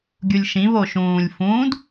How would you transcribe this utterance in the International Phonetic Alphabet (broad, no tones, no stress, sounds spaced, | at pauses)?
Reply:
ɡʲ u lʲ ʃ ĩ β oː ʃ ũː lʲ f ũː d